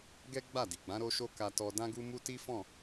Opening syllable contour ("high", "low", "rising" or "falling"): high